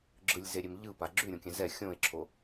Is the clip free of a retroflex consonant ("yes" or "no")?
yes